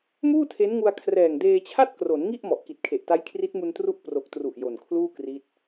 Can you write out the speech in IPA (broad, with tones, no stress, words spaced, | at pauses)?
muː˥˩tʰe˦˥nŋu˧a̯ kʰrɛː˨˩ŋdeː˧t͡ɕʰa˥˩t̚ kro˩˦nŋi˥˩ʔ mɔ˨˩ʔki˨˩t̚kʰe˨˩ʔta˦˥j kʰri˦˥t̚mu˧ntru˦˥ʔ pro˨˩k̚tru˨˩ʔ jo˨˩nkʰluː˥˩kri˦˥t̚